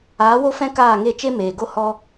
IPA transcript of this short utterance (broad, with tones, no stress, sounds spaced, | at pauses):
aː˨˦ w o˦ f ɛ̃˦ k aː˦˨ ŋ e˦˨ t͡ʃ e˦ m eː˨ ɡ o˦ h ɔ˦